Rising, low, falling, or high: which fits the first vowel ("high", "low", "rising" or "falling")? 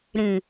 low